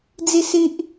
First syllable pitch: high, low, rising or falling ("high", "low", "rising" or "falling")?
falling